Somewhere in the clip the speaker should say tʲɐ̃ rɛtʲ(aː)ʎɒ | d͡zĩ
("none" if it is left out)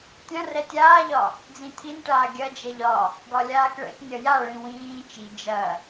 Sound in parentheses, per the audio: aː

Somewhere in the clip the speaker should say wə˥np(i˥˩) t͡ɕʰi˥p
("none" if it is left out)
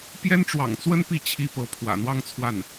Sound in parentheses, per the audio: i˥˩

